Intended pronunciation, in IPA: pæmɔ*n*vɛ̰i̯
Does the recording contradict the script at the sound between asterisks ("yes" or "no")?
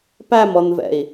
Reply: no